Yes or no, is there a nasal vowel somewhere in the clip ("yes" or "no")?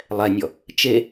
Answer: no